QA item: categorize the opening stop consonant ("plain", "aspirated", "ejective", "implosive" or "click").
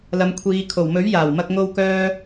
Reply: aspirated